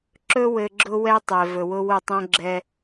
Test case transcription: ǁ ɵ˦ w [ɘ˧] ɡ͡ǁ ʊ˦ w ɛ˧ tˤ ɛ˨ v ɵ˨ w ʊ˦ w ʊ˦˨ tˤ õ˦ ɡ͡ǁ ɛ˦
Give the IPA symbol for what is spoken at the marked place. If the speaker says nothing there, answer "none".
ɘ˧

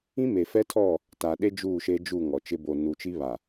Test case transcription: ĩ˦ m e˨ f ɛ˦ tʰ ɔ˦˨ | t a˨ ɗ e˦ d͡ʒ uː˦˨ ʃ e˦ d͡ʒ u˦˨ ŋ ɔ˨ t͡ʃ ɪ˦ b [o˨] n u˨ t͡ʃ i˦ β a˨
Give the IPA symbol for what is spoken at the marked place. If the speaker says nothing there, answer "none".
o˨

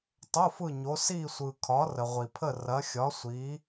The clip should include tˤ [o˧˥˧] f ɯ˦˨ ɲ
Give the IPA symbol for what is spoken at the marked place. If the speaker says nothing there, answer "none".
o˧˥˧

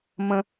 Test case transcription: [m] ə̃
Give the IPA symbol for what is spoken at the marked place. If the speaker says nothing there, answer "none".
m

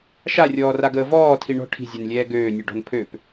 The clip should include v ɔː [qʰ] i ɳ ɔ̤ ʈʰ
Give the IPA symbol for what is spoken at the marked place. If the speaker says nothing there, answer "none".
tʰ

